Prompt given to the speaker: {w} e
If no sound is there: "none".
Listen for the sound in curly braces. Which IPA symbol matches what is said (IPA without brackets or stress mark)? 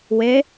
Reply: w